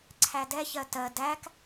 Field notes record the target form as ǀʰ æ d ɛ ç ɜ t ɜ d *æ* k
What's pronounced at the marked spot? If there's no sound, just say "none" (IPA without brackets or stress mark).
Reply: æ